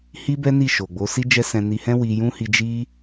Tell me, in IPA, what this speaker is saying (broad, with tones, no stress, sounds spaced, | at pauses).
h i˦ b ɛ˦ n i˦˨ ʃ o˨ ɡ͡b o˨˦ s i˦ d͡ʒ ɛ˦ s ɛ̃˧ n i˧ h ɛ̃˦ w i˧ j ũ˦ h i˧ d͡ʒ i˦